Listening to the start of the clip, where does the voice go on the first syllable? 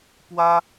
high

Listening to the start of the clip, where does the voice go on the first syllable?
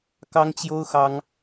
high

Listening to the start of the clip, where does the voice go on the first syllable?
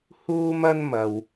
high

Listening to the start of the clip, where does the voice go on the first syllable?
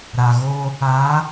low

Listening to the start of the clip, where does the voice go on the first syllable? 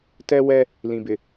high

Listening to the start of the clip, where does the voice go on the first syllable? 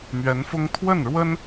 rising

